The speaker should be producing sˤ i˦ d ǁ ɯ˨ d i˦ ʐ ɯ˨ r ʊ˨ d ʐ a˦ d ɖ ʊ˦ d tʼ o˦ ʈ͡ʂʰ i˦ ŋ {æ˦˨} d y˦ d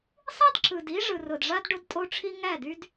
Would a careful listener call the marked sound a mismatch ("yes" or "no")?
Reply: no